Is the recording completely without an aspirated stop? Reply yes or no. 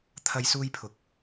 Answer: no